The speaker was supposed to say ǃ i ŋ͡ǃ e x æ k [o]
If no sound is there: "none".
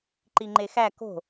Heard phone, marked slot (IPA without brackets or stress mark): o̤